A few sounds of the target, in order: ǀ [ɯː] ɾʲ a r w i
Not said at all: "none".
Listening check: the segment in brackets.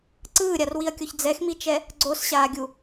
ɯː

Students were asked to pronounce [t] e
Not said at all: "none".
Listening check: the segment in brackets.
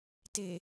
t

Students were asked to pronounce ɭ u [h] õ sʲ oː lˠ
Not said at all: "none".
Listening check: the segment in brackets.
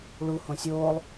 h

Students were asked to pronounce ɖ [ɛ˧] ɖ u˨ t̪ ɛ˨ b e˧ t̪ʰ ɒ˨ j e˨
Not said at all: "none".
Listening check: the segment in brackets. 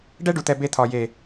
ɛ˦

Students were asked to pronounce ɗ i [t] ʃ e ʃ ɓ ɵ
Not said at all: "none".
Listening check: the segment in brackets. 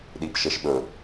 p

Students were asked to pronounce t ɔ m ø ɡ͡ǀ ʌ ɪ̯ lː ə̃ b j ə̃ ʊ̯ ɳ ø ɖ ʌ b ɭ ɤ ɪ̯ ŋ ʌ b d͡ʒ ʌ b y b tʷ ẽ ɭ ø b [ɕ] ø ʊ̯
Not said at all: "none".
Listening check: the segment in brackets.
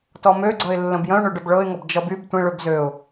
z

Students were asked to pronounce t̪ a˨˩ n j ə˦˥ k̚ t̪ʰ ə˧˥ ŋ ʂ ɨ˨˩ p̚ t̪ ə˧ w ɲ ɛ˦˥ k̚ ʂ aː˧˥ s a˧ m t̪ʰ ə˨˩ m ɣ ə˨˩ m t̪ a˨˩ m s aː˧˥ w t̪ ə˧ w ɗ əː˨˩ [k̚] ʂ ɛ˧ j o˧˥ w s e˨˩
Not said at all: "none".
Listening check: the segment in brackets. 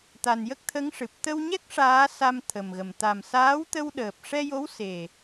p̚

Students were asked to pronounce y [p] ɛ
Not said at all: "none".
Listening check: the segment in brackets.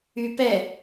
p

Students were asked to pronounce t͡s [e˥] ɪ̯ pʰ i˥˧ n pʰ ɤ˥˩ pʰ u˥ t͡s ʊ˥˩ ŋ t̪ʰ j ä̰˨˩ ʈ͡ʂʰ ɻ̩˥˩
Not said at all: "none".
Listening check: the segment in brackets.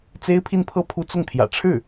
e˥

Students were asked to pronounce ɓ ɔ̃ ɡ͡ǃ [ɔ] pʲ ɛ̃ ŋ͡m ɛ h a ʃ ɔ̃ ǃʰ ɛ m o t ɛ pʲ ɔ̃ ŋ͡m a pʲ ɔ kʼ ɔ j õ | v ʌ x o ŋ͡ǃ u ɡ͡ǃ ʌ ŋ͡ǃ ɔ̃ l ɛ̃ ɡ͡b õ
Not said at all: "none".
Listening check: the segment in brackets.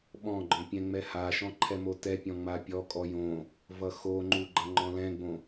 ɔ̃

